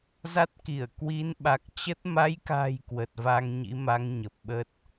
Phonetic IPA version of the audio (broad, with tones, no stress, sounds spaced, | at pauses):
z a˦˥ t̚ k i˧˩ ə̯ k w i˨˦ n ɓ a˨˩ k̚ t͡ɕ ə˦˥ t̚ m a˨˦ j k a̤˨˩ j k w ə˨˩ t̚ v a˧ ŋ ɲ ḭ˧˥ m a˨˦ ŋ ɲ ə˨˩ p̚ ɓ ə˦˥ t̚